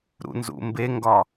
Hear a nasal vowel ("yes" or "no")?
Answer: no